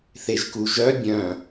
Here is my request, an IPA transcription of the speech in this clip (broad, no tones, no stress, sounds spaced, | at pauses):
θ e ʒ k u ʒ œ bʲ œ̃